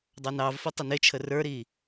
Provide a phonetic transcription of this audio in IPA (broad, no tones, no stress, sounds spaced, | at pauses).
dˤ ɑ n ɑ v f ʌ tˤ ə n ɪ t͡ʃʰ ə r ə˞ ɾ i